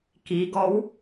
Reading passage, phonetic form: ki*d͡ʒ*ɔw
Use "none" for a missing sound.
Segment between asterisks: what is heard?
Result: ɡ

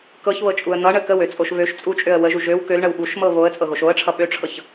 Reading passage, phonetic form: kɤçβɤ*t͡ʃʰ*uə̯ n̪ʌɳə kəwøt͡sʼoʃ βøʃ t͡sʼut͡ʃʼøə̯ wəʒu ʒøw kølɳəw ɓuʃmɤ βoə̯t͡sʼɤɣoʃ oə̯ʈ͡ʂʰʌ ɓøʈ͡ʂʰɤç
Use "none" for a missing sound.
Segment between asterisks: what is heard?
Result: t͡ʃʼ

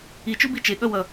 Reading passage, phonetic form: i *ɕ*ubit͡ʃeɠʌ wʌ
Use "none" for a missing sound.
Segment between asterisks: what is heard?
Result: t͡ʃ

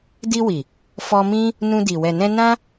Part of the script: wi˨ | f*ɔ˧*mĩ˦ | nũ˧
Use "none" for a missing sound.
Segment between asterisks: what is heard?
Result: ɔ˧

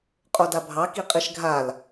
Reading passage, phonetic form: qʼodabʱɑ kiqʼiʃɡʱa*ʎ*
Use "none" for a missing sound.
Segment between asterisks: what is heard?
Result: l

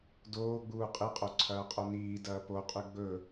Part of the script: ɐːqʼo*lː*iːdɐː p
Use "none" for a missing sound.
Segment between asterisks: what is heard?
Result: n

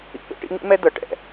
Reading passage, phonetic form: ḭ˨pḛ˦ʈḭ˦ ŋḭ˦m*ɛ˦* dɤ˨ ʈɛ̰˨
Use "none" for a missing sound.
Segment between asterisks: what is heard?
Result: ɛ˦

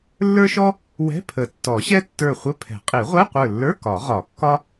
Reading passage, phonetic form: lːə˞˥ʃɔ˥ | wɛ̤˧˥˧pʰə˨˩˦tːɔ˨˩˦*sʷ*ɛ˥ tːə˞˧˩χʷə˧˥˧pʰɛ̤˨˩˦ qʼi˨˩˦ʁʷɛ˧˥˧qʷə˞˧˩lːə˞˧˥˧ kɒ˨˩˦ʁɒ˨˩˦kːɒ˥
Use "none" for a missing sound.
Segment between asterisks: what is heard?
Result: ɕ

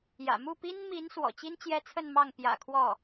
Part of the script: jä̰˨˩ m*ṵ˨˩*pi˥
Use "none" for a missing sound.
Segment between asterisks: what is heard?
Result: u˥˩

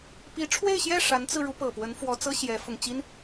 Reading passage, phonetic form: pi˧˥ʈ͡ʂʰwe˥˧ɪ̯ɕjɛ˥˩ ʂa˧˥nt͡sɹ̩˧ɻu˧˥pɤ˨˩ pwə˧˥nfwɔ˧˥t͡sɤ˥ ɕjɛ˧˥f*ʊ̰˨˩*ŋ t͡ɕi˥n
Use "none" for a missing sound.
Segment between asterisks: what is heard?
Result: ʊ˧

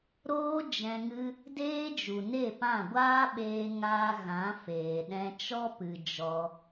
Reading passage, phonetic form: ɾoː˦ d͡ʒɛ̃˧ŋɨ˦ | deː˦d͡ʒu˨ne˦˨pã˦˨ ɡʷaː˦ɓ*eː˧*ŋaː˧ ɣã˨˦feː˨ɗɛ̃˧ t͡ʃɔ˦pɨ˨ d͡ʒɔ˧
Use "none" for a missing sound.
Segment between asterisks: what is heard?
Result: eː˧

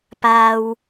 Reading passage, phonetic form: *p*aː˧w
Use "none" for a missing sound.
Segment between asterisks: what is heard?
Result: p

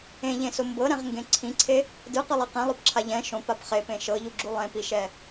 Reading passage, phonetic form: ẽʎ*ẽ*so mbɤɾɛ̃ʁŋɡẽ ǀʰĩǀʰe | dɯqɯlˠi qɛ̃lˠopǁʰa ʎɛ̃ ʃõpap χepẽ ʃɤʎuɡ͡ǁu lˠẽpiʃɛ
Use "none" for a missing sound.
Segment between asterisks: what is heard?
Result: ẽ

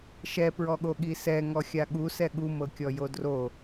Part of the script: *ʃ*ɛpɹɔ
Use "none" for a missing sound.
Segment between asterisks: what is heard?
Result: ʃ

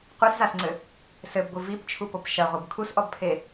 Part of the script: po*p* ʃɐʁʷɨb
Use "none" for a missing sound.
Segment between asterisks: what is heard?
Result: p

